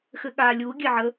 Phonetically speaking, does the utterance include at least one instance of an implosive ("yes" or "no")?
yes